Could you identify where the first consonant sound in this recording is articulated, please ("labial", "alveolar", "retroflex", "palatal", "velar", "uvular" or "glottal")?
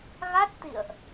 velar